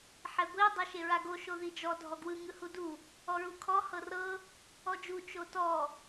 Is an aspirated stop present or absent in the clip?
present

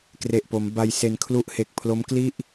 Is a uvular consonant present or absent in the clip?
absent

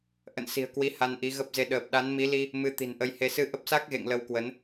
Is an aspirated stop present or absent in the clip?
absent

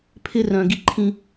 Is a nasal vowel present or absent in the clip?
present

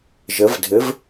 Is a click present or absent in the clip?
absent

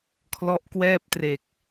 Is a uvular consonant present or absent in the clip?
absent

